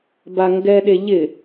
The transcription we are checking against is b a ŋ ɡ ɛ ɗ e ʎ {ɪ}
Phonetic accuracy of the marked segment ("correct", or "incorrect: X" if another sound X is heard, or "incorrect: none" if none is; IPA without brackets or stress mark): correct